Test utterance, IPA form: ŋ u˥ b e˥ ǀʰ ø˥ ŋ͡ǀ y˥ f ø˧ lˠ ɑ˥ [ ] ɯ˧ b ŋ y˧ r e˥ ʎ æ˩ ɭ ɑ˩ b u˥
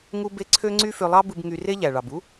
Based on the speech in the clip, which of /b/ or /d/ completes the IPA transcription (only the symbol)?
b